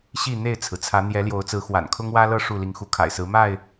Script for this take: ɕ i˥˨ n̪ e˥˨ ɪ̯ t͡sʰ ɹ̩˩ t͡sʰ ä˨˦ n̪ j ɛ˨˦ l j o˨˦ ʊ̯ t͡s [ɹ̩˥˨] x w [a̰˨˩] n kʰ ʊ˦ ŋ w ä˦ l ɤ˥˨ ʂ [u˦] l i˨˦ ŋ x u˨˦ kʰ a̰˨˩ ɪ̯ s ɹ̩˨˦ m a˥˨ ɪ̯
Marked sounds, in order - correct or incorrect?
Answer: incorrect, correct, incorrect

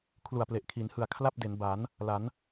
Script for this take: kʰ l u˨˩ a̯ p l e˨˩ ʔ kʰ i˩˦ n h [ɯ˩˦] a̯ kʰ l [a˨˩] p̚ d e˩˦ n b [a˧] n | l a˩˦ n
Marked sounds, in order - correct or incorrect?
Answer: incorrect, incorrect, incorrect

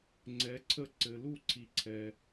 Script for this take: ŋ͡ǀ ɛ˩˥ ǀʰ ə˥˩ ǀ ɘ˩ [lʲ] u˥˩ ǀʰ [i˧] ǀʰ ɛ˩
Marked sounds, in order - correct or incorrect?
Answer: incorrect, incorrect

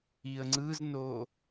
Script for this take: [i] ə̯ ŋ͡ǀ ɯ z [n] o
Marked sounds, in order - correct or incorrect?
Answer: correct, correct

